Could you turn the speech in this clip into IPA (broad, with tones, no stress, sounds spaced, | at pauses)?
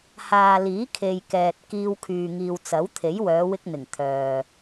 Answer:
h aː˨ l iː˨˥ kʰ e˨ j k ɛː˨ t̚ k iː˧ w kʰ yː˨ ŋ iː˨ w t͡s ɐ˨˥ w t̪ʰ e˨˥ j w œː˨˧ w ɪ˥ k̚ n̪ ɪ˨˩ ŋ t̪ʰ œː˨